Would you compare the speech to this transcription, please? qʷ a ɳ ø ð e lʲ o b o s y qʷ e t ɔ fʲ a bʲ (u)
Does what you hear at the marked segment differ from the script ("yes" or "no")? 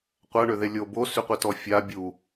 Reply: no